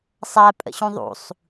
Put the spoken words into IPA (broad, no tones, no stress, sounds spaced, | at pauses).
sˤ æ pʼ ə̰ ɕ ũ ðˤ ṵ sˤ